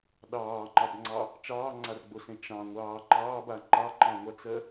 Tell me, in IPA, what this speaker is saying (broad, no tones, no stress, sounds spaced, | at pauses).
ɗ ɑː ŋ͡ǃ ɑ b ŋ͡ǀ ɑ | t͡ʃ ɑː ŋ͡ǀ a r ɡ͡b o s ẽ t͡ʃ ɑ̃ ŋʷ ɑː ǃ ɑː b a ŋ͡ǃ ɑ ǃ ɑ̃ ŋʷ a t͡s ɜ